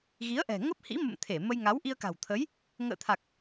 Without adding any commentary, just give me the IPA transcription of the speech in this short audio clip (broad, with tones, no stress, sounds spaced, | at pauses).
ɣ i˨˦ ə̯ ʔ ɛ̤˨˩ ŋ ə˦˥ p̚ h ḭ˧˥ m ə̰˧˨ m t̪ʰ e˧˩ m ə˧ j ŋ a˨˦ w ʔ i˧ ə̯ k a̤˨˩ w t̪ʰ ə˨˦ j | ŋ ə̰ː˧˨ t̪ʰ a˨˩ k̚